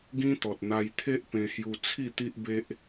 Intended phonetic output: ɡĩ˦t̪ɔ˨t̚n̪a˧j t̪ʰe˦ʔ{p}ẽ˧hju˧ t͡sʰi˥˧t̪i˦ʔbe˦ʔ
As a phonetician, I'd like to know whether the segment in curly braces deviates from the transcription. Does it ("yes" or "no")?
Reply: no